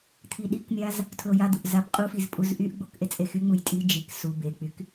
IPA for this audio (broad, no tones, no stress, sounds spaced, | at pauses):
t̪ʰ i ɗ i k mʲ a z | tʰ l o j a d̪ u ʔ z a p qʼ u f i z pʼ u z ʔ y ʔ ɡ͡b o k ʔ e t͡sʼ e x y ŋ͡m u j tʼ i d͡ʒ i k s u b e k͡p y k